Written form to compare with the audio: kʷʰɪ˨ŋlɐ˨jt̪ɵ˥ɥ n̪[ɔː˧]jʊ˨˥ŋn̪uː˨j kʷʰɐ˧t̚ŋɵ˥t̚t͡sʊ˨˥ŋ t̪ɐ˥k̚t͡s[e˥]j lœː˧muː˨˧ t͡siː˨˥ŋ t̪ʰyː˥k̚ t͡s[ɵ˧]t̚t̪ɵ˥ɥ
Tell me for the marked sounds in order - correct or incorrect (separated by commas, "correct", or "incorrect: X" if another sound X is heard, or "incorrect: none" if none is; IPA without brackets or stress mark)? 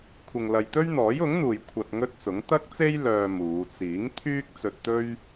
incorrect: ɔː˨˥, correct, correct